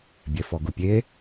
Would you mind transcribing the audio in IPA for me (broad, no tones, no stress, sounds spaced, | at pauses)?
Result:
bʲ ɛ f ɔ ɡ u pʲ e